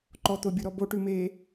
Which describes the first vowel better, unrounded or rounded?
rounded